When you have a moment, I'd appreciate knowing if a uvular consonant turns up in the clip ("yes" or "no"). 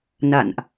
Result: no